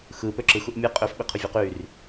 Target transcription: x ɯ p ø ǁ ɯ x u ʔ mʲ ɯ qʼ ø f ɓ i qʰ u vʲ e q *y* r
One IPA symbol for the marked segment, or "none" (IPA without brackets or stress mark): y